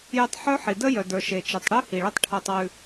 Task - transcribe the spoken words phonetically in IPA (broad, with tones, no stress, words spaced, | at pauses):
je˧tˤħœ˦ħi˨ də˦ jœ˨də˞˨ ʃe˨t͡ʃi˨tˤ ɽʉ˦hi˨ɭə˦tˤ ʈʰo˧tˤwʉ˧